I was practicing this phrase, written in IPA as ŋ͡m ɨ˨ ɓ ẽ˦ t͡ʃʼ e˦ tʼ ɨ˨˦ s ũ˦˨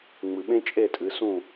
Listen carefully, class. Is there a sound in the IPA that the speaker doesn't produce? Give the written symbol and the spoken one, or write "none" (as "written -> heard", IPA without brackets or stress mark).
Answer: e˦ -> e˦˨